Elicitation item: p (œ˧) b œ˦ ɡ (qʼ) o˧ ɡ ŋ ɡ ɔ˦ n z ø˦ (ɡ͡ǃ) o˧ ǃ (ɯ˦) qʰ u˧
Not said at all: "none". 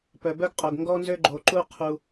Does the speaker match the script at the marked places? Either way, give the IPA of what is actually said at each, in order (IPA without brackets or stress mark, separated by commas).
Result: œ˧, qʼ, ɡ͡ǃ, u˦